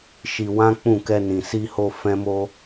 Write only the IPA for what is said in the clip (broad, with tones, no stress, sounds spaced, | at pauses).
ʃ i˧ w ã˦ k͡p ũ˦˨ k ɛ˧ n ĩ˨ s i˧ h o˧ f ɛ̃˦ m o˦